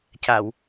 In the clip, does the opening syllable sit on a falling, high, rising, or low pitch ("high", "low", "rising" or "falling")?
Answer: low